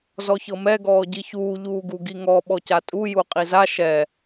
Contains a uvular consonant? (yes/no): yes